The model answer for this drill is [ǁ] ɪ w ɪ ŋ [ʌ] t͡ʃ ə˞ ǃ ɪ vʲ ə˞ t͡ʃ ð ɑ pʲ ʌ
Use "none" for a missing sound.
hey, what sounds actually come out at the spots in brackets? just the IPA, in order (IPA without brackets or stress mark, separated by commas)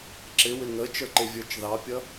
ǁ, ə